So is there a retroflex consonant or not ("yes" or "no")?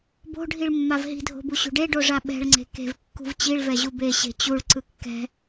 yes